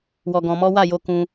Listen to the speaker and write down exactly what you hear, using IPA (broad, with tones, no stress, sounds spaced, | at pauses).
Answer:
w ɔ˧ ɡ ɔ̃˧ m ɔ˦ w a˦˨ j o˧ k ũ˧